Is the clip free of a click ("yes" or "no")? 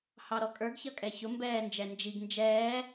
yes